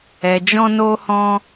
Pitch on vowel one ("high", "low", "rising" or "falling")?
low